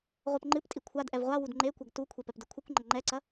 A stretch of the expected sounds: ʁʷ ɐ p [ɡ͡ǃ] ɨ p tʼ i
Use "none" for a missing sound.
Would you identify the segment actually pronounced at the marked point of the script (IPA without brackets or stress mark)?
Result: ŋ͡ǃ